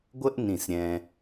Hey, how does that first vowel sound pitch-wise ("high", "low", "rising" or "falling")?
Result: high